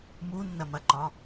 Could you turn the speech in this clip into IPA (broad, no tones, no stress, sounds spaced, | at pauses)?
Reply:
m u nː ɐ m ɐ ǃ ɒ